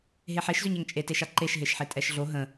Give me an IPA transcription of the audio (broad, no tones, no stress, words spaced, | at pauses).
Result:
ɦeħeʃzʏɲ ɛŋt͡ʃʼeteʃa ǃeʃɦeʃħe tʼɛʃɮo ɦə̃